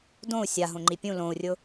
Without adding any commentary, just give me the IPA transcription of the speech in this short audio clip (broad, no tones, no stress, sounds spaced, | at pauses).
d õ u̯ sʲ a ɦ õ ŋ͡ǃ i pʲ ũ l õ u̯ rʲ ʊ